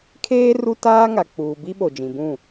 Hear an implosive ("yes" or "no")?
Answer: yes